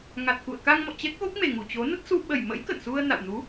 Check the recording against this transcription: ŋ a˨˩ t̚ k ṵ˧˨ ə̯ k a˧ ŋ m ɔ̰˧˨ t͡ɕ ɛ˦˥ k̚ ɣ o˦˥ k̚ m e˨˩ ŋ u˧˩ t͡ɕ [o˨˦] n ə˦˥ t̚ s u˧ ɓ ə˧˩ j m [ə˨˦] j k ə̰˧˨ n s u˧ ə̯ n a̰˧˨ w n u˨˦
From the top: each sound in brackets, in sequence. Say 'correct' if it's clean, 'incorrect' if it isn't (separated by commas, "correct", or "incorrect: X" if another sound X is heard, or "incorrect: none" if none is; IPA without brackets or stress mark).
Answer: correct, incorrect: ə̰˧˥